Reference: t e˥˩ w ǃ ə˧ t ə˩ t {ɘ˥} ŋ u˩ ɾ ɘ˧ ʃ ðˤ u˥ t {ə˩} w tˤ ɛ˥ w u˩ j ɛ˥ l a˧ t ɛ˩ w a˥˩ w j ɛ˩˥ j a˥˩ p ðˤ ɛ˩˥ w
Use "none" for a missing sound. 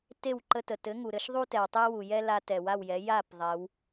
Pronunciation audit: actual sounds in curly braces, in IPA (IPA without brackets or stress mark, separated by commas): ɘ˩˥, ɛ˩